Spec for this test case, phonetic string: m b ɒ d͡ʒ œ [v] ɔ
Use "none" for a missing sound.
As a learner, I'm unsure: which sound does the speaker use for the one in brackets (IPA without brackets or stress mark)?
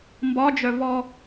v